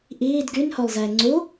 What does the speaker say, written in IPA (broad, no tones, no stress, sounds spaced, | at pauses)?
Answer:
ʔ iː d ɡ y n h o lˠ z ɛː ŋ͡ǀ u